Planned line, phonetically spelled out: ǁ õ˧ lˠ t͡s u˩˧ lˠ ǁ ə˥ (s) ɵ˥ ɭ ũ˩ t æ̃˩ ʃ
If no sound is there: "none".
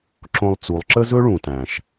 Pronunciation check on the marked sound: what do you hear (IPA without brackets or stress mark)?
z